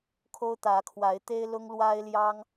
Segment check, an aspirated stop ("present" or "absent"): present